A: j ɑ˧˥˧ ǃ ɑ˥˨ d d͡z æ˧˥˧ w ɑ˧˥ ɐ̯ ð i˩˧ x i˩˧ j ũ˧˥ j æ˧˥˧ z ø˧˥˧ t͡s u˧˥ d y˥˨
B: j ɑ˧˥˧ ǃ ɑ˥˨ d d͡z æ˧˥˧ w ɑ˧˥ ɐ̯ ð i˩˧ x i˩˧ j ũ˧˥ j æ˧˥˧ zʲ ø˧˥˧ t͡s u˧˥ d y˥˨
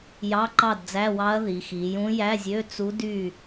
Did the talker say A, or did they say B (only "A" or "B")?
B